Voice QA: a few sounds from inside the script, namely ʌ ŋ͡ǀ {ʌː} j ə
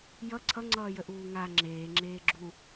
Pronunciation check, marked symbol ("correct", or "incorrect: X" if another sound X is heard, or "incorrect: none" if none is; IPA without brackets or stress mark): correct